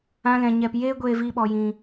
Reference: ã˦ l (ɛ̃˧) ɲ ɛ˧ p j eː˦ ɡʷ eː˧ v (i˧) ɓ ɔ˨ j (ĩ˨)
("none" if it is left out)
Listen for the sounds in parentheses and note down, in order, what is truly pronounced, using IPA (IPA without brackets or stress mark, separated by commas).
ɛ̃˧, i˧, ĩ˨